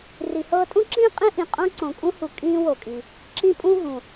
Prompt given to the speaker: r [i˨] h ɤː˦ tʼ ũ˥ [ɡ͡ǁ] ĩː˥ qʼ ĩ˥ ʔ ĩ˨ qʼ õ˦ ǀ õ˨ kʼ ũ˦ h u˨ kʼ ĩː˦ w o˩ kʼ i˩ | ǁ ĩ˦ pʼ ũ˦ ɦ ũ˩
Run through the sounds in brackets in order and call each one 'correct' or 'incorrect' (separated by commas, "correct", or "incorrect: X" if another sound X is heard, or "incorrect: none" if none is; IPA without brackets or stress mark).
correct, incorrect: ǁ